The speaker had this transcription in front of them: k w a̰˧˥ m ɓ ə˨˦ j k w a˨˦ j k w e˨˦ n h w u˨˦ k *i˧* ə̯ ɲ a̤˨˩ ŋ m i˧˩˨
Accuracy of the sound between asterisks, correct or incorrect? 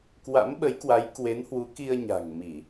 correct